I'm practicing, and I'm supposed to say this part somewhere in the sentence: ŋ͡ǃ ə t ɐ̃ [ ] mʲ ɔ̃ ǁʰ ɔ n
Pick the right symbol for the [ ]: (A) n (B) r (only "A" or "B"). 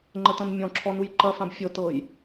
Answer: A